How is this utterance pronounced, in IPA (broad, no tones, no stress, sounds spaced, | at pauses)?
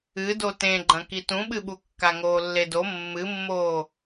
ɨ d o t ẽ ɡ͡ǃ ɐ̃ k i t ũ ɓ ɨ ɓ u kː a ŋ oː lː e d o mː ɨ mː oː